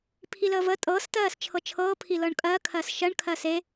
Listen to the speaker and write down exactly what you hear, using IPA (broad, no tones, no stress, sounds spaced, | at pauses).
pʰ i l əː v ə tʼ ɤː s t ɜː s t͡ʃʰ ɤ t͡ʃʰ ɤː pʰ i l ɤ ɳ kʼ ɜː kʰ ɜː s ʃ ɜ ɳ kʰ ɜː s e